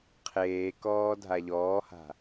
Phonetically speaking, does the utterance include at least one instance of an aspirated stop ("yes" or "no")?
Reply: yes